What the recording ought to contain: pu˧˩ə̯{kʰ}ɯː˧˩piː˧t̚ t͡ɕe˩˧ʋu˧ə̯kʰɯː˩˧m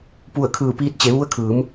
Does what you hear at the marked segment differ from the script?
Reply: no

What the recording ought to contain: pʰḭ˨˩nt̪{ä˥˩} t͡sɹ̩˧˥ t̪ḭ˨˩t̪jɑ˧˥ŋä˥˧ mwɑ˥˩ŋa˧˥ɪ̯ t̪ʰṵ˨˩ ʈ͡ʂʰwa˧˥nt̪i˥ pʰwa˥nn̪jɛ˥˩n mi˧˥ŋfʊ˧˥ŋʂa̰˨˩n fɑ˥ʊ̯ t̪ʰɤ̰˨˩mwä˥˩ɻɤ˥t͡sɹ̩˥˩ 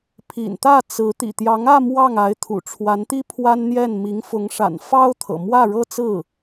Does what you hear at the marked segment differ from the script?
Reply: no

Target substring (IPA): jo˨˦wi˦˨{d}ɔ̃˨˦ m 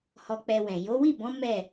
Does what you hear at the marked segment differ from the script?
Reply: yes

